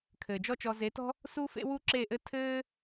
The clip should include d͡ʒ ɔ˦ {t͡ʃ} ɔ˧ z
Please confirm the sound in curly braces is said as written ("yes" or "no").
yes